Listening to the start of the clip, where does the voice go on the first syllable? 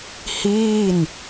falling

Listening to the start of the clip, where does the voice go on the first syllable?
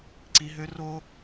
high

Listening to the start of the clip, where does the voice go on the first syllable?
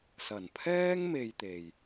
low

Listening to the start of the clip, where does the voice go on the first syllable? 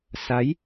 rising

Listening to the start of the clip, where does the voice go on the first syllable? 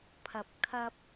low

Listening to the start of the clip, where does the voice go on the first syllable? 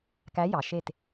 rising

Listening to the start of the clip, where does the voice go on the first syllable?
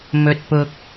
high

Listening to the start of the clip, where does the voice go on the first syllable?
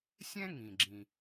high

